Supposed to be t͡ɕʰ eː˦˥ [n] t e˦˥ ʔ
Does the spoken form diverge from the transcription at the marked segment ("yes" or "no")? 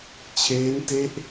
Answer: no